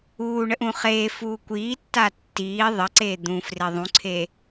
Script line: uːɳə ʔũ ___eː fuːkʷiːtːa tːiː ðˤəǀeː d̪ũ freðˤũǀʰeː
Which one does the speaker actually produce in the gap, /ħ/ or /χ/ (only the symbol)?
χ